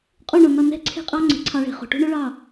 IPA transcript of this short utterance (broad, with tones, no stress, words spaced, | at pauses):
qʼu˦˨ɳo˨nɒ˧ nɛ̤˦ǀʰe̤˦qʼɑ˦ŋ͡ǀe̤˨ ǀʰɑ˧ɭe̤˨χo̤˨ ʈṳ˦ ɳo˦ɭɑ˦˨